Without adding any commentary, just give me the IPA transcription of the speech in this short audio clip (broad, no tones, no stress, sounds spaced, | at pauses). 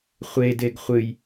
χʷ e d e ɡ χʷ ɨ j